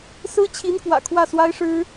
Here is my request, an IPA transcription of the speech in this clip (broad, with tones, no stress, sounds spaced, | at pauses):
s ɹ̩˥ t͡ɕʰ i˧˥ n k w ä̰˨˩ kʰ w ä˥˩ s w a˥ ɪ̯ ʂ ɻ̩˥